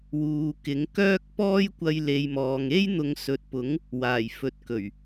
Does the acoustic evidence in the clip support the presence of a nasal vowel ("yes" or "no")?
no